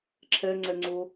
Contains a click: yes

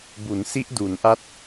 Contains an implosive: no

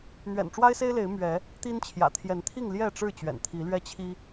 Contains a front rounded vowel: no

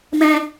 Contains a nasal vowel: yes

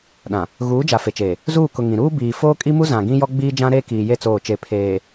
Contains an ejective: yes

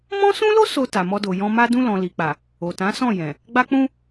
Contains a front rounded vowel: no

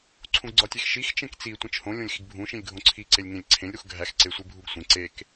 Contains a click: yes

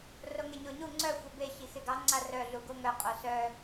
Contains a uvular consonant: yes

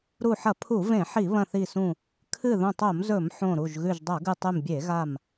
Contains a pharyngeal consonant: yes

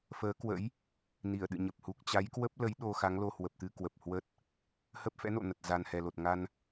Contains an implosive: yes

